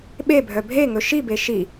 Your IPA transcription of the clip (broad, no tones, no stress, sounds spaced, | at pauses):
ɓ e bʱ œ bʱ e ŋ ɵ ʃ i b e ʃ i